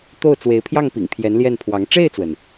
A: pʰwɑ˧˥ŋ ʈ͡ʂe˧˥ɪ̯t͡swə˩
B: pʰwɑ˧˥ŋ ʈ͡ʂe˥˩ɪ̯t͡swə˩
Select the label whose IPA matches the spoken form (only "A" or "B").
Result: B